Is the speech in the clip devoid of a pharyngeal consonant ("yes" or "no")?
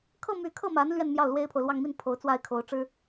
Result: yes